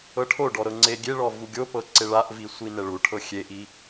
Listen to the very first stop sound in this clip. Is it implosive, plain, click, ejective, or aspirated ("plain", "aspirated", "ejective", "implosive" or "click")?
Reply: aspirated